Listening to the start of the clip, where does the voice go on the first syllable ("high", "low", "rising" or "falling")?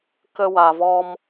high